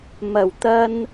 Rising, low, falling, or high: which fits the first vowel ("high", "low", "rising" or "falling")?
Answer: low